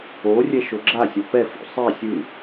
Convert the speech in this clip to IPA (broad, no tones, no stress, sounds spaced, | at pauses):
o rʲ ɛ ʃ o ɡ͡ǁ a sʲ ɔ p ɛ f ṵ sˤ e sʲ ɯ